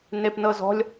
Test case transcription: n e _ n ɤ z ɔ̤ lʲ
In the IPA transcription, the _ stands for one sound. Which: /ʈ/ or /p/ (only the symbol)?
p